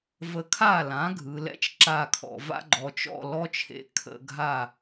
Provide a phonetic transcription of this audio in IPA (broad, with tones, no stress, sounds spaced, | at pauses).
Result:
v ə˦ kʰ a˥˩ l ã˩˥ ɡʱ ɯ˩˧ l ɛ̰˦ t͡ʃ ǁ a˥˩ kʰ ɔ̰˧˩˧ v a̰˦ ɡ͡ǃ ɔ˩˧ t͡ʃ ɔ̰˥˩ l ɔ˦ t͡ʃʰ ḛ˩˥ kʰ ə̰˧˩˧ ɡʱ a˥˩